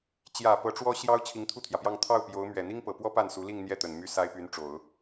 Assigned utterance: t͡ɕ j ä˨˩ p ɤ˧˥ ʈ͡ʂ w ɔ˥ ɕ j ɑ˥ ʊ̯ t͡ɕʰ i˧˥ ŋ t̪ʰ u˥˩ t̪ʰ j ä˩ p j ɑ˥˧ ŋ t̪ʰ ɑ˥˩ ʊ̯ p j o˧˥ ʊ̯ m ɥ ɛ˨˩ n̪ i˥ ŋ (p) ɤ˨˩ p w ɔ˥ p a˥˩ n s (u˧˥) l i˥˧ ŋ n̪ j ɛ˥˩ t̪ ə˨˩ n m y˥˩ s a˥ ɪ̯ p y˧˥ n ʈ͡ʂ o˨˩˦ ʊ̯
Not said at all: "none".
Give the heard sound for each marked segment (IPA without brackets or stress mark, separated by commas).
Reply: p, u˧˥